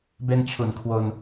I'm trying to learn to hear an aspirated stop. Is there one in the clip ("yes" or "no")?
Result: yes